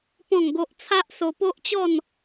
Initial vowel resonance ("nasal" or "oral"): nasal